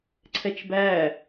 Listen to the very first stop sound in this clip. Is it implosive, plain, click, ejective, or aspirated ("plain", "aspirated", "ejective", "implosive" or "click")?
click